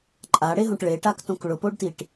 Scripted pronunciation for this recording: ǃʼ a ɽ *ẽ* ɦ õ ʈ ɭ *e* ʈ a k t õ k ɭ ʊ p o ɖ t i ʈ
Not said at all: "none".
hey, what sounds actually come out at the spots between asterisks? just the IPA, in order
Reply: e, e

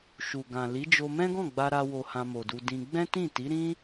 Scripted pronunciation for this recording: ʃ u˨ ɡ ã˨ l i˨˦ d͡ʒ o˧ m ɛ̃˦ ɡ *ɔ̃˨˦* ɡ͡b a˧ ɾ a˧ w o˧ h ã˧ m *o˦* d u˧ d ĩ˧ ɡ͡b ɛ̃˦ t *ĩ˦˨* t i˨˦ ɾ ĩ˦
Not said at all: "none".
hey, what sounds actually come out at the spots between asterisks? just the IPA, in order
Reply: ɔ̃˦˨, o˨, ĩ˦˨

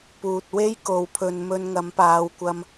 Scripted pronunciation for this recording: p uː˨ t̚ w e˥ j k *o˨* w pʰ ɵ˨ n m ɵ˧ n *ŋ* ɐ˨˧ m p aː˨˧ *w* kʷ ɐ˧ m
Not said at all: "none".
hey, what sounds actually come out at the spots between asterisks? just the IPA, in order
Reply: o˨, ŋ, w

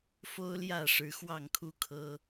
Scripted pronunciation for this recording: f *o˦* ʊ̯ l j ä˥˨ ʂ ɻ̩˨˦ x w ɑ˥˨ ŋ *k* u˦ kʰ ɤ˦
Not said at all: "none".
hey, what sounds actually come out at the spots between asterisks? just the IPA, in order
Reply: o˦, kʰ

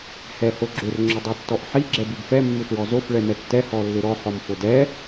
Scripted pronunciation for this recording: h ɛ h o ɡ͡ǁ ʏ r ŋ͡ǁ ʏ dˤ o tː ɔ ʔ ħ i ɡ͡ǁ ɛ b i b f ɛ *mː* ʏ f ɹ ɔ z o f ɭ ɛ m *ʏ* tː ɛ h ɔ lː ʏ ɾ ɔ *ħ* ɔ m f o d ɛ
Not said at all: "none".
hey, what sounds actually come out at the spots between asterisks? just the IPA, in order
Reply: mː, ɛ, ħ

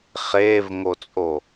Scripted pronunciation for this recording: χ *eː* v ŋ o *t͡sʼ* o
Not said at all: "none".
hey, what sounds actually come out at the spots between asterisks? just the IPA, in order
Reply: eː, t͡sʼ

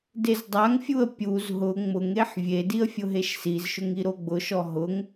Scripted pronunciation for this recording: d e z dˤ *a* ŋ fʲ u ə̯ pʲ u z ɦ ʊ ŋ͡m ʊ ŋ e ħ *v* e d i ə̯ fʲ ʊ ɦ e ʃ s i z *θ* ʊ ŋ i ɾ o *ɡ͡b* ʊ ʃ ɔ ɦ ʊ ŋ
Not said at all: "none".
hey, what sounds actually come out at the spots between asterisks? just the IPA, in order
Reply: a, vʲ, ʃ, ɡ͡b

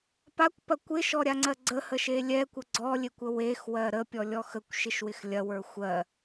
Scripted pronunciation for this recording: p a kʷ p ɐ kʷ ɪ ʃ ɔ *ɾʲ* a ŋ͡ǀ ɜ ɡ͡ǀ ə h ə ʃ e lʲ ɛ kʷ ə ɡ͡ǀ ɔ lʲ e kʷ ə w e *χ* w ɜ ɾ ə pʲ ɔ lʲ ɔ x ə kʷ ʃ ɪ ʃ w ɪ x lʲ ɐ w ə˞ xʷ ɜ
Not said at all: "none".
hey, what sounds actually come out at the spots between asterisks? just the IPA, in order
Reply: ɾʲ, x

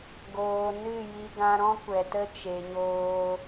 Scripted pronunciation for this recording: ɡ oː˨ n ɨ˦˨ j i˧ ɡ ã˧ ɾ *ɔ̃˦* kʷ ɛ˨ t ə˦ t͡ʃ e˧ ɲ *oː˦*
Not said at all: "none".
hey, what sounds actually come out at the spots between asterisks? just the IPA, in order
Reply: ɔ̃˦, oː˦

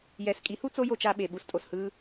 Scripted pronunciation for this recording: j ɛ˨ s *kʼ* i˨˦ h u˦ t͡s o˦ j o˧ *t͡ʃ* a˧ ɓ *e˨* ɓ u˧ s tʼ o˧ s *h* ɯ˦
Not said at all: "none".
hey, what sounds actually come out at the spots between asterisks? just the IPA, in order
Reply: kʼ, t͡ʃ, e˨, h

